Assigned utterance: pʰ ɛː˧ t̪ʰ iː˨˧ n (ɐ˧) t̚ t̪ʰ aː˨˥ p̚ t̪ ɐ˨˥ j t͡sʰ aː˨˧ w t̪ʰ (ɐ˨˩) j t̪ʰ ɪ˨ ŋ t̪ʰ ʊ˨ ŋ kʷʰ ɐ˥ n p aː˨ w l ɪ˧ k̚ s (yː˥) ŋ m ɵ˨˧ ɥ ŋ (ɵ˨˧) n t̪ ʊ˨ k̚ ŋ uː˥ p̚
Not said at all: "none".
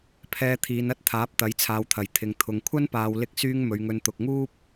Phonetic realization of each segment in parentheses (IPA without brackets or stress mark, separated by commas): ɐ˥, ɐ˨˩, yː˥, ɵ˧